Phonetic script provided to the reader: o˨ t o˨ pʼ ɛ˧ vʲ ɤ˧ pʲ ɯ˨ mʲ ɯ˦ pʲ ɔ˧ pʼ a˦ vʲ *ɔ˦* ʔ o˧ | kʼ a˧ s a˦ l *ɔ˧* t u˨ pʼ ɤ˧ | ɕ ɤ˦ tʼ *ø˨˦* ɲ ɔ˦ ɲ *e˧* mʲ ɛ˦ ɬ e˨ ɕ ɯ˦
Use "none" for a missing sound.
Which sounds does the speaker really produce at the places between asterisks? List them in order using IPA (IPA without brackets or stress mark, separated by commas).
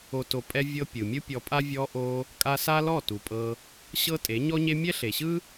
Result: ɔ˧, ɔ˦˨, e˨˦, e˦